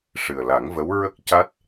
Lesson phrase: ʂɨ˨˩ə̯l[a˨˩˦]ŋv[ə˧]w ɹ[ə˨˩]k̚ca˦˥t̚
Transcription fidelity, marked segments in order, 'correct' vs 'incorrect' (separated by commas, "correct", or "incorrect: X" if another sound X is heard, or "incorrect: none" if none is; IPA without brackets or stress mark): correct, incorrect: ə˧˥, incorrect: ə˦˥